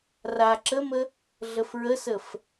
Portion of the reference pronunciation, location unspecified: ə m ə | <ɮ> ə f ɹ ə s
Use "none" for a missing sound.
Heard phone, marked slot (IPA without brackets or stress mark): ɮ